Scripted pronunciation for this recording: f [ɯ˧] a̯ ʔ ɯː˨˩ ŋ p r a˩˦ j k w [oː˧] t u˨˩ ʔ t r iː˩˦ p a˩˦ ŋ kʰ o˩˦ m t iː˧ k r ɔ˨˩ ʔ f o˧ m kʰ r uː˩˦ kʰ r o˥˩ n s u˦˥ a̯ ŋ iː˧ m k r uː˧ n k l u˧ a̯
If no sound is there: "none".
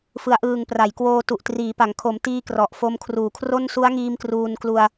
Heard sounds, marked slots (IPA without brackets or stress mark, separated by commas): ɯ˩˦, oː˧